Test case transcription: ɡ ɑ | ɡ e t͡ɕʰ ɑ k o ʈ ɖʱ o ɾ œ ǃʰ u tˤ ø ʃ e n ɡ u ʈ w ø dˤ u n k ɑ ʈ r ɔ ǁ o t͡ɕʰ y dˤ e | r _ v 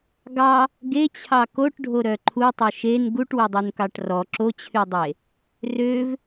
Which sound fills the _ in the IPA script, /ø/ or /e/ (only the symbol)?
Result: ø